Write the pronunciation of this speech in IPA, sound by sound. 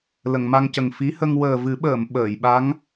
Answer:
l ə˨˩˨ ŋ m a˧ ŋ c ə˨˩ ŋ f i˧˥ h ə˧ ŋ w əː˨˩ v ɨ˨˩˦ ɓ əː˨˩˨ m ɓ əː˨˩˨ j ɓ a˧˥ ŋ

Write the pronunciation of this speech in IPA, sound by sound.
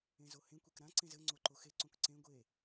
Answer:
ẽ z o h ẽ kʷ e k ɾ ã ǀ ẽ z ɘ ŋ͡ǀ o ǃ o x e ǀ õ k ǀ ẽ ɡʷ e

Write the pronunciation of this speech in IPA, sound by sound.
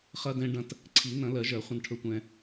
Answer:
χ ɐ˧ d ɛ̃˧ ɖ ɐ̃˧ t | ǀʰ i˨˩˦ n ɐ̃˨˩˦ l ɜ˨˩˦ ʒ ɜ˨˩˦ χʷ ɐ̃˧ n ʈʰ ɵ˧ tʷ ɛ̃˧

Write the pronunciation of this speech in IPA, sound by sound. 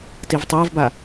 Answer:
t i v tˤ əː v b a

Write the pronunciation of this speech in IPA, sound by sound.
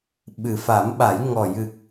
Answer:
ɓ ɨ˨˩ f a˨˩˦ m ɓ a˨˩˦ j ŋ ɔ˨˩ j ɨ˨˩ k̚

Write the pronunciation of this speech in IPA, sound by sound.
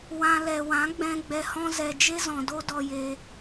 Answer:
w ã˧ l ɛ˨ w ã˨˦ ɡ͡b ɛ̃˧ ɡ͡b ɛ˧ h ɔ̃˦ z ɛ˧ d͡ʒ e˦ z ɔ̃˨ d o˦ d ɔ˧ j eː˧

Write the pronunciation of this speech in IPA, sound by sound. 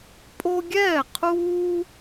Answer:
pʼ o˦ ɡʲ ɛː˥˨ qʰ uː˦

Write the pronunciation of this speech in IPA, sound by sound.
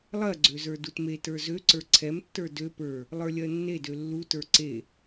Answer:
lˠ ɜ ɡ͡ǀ ø z ə˞ d u t m e t ə˞ z ø ǀ ə˞ ǀʰ ɛ m tː ə˞ d ø p ə˞ | lˠ ə˞ lʲ ɜ nː e d ø lː u t ə˞ ǀ e

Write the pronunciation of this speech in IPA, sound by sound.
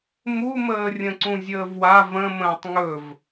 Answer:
m u m əː rʲ ə̃ ǀ ũ zʲ əː v w a v ə̃ m ə̃ː tˤ ŋ ɵ v

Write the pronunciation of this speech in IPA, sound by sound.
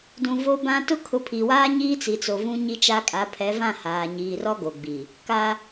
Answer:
d ũ˨ v o˦ b ã˦ t ʊ˦ kʰ ʊ˨˦ pʰ i˨ w aː˦ ɲ iː˦ t͡s i˨ t͡s o˨ v ũ˦ ɲ i˦ t͡ʃ a˦ kʼ a˨˦ pʰ ɛ˨˦ v ã˦˨ h aː˨ ɲ iː˨ r ɔ˦ ɡ o˨ ɡ͡b i˨ | k a˦

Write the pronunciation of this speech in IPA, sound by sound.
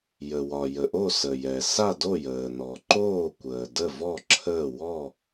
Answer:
j ə˩ w ɒ˩ j ə˩ ʔ o˥˨ s ə˩ j ɛ˩ s a˥˨ d o˥˨ j əː˩ n ɔ˩ ǃ oː˥˨ kʷ əː˩ d ə˥˨ v ɔ˥˨ ǁʰ əː˥˨ w ɔ˥˨

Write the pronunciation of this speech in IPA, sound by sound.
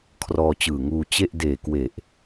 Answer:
kʰ r ɔː˧ t͡ɕ ɯː˨˩ ŋ uː˧ t͡ɕ e˥˩ ʔ d eː˨˩ k w e˨˩ ʔ

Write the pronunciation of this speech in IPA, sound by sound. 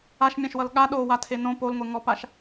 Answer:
a ʃ mʲ ã ʃ w ʌ l ɠ a ɗ o w a tʰ e n õ p o l ŋʷ e ŋ ɔ p a ʃ

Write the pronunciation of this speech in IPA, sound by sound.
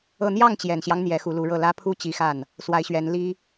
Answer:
ɤ˥˧ n̪ j ɑ˥˩ ŋ t͡ɕ j ɛ˨˩ n ɕ j ɑ˦ ŋ n̪ j ɛ˧˥ x u˧˥ l u˧˥ ɻ ɤ˥˩ l ä˥ pʰ u˥ t͡ɕ i˧˥ x a˥˩ n | s w a˧˥ ɪ̯ ɕ ɥ ɛ˧˥ n l i˥

